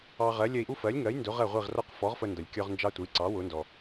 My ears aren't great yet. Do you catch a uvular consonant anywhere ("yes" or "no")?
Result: yes